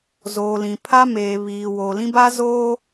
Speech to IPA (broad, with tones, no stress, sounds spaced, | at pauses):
z oː˨ l ĩ˨ pʰ a˦ m eː˨ β iː˨ w oː˨ l ĩ˦ b a˦ z oː˦